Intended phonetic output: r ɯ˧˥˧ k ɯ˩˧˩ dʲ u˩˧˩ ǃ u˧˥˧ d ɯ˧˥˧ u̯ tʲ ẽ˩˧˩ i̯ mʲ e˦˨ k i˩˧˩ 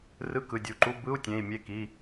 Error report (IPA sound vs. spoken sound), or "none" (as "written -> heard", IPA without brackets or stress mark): d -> b